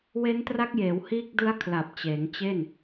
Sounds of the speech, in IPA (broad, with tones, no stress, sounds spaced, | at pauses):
w e˦˥ n t r a˦˥ k̚ j eː˩˦ w h iː˦˥ k̚ d ɯ˦˥ a̯ kʰ l a˨˩ p̚ t͡ɕ eː˩˦ ŋ t͡ɕ e˥˩ n